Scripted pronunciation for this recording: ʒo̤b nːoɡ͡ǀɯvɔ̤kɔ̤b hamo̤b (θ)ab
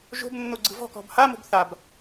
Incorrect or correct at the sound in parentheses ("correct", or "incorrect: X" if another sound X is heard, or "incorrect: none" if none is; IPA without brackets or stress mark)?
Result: correct